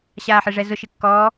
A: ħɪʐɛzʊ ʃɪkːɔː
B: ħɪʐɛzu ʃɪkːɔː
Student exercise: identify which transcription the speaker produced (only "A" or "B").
A